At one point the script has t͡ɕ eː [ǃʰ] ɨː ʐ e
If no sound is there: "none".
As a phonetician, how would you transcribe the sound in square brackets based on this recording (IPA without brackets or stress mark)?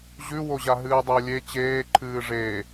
ǃʰ